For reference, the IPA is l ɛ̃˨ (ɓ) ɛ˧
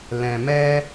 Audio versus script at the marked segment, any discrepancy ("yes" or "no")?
yes